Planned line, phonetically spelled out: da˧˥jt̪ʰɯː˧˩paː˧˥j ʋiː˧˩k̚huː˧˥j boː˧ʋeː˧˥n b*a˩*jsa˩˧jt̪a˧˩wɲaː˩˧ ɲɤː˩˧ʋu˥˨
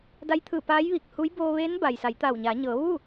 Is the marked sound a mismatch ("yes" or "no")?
no